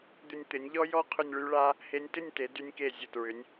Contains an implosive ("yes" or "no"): no